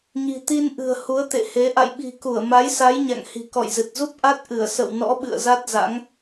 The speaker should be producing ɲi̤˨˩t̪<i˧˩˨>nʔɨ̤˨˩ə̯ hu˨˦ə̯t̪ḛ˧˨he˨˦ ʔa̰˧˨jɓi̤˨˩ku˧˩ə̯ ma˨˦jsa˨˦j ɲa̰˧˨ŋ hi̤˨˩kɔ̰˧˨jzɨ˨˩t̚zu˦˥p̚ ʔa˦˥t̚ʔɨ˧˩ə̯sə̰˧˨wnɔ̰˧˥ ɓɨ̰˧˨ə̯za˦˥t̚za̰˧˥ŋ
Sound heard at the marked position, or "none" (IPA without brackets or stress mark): i˧